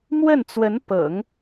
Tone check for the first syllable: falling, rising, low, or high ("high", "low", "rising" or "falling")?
falling